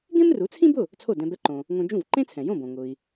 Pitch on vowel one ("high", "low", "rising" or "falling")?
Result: high